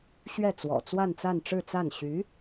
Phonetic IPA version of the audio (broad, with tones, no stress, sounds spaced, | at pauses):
ɕ ɥ ɛ˥˩ t͡s w ɔ̰˨˩ t͡s w a˥˧ n t͡s a˥˧ n ʈ͡ʂ ɻ̩˥˧ t͡s a˥˩ n ɕ y˧˥